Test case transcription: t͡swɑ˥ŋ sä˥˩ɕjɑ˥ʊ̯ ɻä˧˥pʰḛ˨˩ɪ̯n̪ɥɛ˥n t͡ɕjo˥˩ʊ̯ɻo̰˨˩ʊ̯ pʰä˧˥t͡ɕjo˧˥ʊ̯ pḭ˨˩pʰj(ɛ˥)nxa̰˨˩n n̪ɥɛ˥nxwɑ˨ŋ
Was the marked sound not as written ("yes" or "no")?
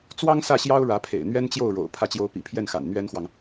yes